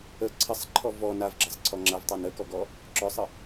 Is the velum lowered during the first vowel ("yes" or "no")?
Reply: no